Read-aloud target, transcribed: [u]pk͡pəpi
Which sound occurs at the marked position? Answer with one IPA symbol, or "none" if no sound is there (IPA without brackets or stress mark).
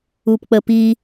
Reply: u